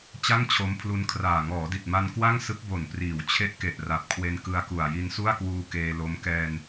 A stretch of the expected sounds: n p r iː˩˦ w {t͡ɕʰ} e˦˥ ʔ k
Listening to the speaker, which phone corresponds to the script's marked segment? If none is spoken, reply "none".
t͡ɕʰ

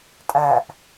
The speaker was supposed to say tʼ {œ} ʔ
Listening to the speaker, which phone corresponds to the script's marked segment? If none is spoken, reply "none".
æ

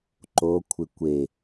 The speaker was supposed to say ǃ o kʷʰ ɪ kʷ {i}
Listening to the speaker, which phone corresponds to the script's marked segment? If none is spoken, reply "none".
e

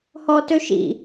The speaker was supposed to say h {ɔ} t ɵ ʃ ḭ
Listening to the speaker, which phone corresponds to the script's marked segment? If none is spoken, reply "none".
ɔ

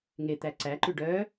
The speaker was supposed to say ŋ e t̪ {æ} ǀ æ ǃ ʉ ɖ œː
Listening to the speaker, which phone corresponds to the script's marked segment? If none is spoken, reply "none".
æ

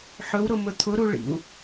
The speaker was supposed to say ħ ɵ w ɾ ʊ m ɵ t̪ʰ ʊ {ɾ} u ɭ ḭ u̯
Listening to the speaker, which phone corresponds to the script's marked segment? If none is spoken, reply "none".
ɾ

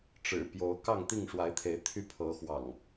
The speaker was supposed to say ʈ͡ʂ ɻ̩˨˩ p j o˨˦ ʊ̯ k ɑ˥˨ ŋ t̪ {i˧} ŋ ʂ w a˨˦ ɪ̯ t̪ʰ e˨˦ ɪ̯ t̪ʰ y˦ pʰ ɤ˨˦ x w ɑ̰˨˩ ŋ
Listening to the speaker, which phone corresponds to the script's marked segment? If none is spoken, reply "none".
i˥˨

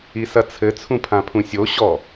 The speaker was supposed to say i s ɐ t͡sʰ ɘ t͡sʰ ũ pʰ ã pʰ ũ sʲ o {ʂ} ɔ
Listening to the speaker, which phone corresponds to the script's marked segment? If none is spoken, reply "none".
ɕ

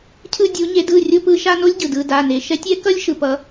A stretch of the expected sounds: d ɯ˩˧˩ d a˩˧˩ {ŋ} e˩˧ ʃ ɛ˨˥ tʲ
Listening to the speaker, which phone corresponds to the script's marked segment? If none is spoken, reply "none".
n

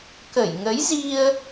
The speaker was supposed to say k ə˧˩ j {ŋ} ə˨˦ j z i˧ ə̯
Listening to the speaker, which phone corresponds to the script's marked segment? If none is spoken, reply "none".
ŋ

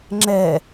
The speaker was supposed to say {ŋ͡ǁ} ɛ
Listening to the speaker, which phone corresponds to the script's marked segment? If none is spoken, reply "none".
ŋ͡ǁ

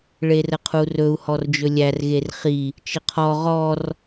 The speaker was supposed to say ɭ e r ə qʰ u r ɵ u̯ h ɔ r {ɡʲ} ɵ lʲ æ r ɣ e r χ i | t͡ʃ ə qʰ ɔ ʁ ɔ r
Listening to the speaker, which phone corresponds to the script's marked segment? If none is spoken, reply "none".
d͡ʒ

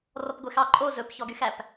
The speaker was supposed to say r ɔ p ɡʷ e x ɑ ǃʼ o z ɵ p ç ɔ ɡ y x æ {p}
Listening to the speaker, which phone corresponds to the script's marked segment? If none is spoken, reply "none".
p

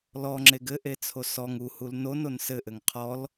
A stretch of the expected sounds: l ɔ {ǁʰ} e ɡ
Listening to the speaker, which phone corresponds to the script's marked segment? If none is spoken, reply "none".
ŋ͡ǁ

